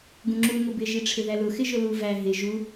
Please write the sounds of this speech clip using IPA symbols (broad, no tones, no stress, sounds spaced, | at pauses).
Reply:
ɡ ũ ŋ͡ǁ u ŋ ʊ b ɪ ʒ i ʈ͡ʂʰ ɪ ð æ l ʊ x ɪ ʒ ʊ l u v æ ɦ ɪ ʒ u